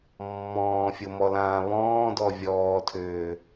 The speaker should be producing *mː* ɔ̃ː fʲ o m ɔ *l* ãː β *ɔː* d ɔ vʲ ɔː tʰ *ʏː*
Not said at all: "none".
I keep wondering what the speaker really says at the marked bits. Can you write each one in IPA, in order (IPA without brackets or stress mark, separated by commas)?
mː, l, ɔ̃ː, ʏː